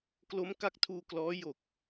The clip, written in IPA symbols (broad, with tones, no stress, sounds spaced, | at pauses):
k l o˦˥ m k a˦˥ k̚ tʰ uː˧ k l ɔː˦˥ j o˨˩ k̚